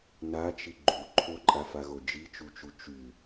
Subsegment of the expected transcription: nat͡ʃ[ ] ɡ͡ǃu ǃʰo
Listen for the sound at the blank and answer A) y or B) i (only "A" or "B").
B